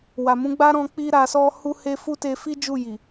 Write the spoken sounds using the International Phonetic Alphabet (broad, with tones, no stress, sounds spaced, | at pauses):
w a˨ m ũ˨˦ ɡ͡b a˦ ɾ ɔ̃˧ k͡p i˦ ɾ a˧ s ɔ˦ h u˦ h e˦ f u˦ t e˧ f i˦ d͡ʒ u˦˨ j i˨